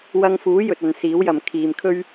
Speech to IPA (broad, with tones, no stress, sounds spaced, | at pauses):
w ɐ˧ ŋ f uː˨˥ j ɵ˨ t̚ ɐ˨ n s iː˨˥ w j ɐ˨ m kʰ iː˨ m kʰ ɵ˥ ɥ